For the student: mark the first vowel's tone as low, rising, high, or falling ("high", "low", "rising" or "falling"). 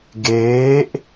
rising